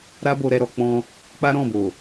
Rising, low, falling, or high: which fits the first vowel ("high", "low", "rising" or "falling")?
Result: high